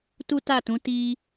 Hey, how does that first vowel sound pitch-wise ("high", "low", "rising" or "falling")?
high